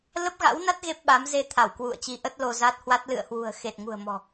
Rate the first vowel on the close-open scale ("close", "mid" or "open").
mid